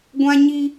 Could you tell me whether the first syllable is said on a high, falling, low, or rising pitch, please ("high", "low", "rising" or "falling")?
high